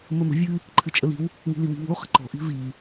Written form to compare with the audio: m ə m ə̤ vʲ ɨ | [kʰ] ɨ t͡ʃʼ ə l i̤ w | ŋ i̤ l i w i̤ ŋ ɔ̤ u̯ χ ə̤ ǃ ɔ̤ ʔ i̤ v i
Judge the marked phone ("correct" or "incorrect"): incorrect